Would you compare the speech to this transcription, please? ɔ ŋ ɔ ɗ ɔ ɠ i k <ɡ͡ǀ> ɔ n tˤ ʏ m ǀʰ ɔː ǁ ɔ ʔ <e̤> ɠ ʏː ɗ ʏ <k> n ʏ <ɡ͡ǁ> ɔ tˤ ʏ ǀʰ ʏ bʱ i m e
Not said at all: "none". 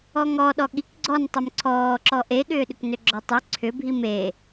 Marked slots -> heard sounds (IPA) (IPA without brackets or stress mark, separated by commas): ɡ͡ǀ, e, k, ɡ͡ǁ